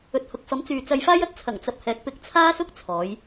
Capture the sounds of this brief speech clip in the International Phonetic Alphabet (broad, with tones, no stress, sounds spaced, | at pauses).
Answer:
ɵ˨ t̚ h ʊ˨ k̚ f ɐ˨˥ m t͡s yː˨ t͡s ɐ˧ j f aː˥ j ɐ˥ t̚ t͡sʰ ɐ˨˩ ŋ t͡s ɐ˨ p̚ h ɛː˨˥ k̚ p ɪ˨˥ k̚ t͡sʰ aː˥ s ʊ˥ k̚ t͡sʰ ɔː˨˧ j